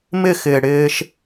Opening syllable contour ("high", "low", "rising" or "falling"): falling